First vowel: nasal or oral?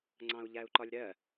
nasal